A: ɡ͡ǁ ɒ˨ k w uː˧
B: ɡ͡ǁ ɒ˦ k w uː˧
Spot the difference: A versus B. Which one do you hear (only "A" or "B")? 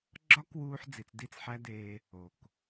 B